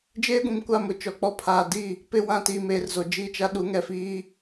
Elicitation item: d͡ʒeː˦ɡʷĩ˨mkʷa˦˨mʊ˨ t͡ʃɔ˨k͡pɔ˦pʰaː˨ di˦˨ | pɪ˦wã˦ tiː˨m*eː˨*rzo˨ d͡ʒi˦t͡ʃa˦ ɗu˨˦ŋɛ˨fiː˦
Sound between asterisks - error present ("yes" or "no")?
no